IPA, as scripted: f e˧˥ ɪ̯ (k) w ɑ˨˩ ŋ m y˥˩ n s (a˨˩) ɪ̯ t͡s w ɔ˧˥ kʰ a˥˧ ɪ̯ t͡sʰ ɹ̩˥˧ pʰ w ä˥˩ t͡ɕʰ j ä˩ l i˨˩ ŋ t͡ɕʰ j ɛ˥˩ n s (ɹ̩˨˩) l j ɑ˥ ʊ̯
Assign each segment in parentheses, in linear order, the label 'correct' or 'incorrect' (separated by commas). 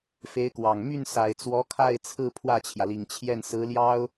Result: correct, correct, incorrect